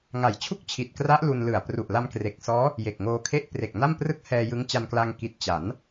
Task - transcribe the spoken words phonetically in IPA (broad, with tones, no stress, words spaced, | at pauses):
ŋa˩˦jt͡ɕʰu˥˩k̚t͡ɕʰi˨˩t̚kra˦˥ʔ lu˧nlɯ˨˩a̯ pru˨˩ʔla˧mkre˨˩k̚sɔː˦˥ | je˨˩k̚ŋoː˧kʰe˥˩ʔ pre˨˩k̚na˥˩mprɯ˥˩k̚hɛː˧ jɯ˦˥ŋt͡ɕa˧nkla˧ŋ ki˨˩t̚ t͡ɕa˩˦n